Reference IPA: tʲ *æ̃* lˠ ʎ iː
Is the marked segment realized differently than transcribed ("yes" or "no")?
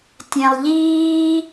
no